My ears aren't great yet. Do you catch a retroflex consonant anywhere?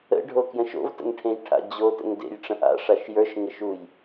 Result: yes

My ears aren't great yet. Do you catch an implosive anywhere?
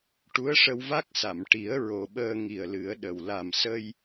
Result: yes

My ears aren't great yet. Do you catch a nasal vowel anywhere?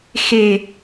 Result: no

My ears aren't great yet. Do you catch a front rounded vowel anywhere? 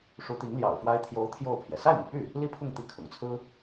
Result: yes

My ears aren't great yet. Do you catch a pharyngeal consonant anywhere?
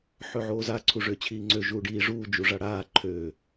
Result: yes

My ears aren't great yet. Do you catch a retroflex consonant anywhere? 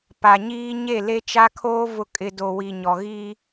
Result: no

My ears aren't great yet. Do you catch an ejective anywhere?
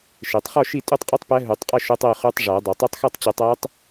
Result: yes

